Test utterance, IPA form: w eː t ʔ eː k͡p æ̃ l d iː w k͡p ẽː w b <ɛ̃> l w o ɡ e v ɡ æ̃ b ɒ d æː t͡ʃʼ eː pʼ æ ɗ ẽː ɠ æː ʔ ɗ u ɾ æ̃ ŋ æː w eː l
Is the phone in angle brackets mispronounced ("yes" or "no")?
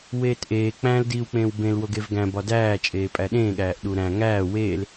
yes